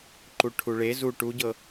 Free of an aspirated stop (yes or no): no